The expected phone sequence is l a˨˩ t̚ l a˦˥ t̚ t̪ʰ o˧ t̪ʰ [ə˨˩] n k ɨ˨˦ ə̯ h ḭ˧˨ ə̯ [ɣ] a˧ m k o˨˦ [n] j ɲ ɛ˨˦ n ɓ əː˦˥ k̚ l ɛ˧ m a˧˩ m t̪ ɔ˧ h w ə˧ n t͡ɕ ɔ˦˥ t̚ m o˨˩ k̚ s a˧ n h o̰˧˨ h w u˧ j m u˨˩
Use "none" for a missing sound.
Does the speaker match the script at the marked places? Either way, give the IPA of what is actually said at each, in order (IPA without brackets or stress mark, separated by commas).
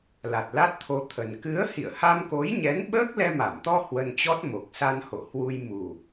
ə˨˩, h, none